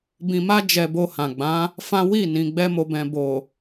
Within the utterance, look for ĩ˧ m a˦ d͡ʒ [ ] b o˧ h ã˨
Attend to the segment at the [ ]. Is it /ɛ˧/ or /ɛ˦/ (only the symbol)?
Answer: ɛ˧